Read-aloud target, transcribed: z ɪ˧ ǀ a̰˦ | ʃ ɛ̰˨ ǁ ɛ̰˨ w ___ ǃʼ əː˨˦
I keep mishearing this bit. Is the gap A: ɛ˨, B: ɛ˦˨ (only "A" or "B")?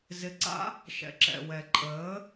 A